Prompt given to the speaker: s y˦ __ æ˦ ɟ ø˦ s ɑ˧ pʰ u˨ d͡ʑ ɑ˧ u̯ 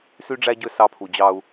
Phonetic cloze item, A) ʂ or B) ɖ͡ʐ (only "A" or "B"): B